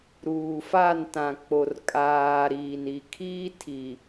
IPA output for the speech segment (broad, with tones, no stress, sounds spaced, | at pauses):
ɾ uː˨ f a˦˨ n t ã˨ k͡p o˨ r kʼ aː˨ ɾ iː˨ n i˨ kʰ iː˦ tʰ i˨